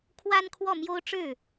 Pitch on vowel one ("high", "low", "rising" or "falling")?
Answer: high